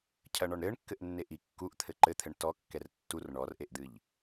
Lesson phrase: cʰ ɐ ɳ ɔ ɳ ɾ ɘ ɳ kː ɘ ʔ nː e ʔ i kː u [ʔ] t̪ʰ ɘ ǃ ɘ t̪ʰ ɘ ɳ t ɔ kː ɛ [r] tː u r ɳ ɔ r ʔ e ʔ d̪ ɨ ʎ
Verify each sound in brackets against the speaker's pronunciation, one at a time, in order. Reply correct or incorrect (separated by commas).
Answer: correct, correct